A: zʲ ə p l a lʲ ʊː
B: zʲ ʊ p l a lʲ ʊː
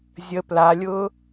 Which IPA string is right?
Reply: A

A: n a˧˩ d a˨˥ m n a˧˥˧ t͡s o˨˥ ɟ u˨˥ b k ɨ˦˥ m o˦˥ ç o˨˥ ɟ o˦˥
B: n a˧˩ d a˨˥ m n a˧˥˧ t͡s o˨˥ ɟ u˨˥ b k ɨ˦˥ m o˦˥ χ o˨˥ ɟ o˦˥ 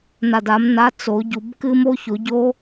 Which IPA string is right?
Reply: A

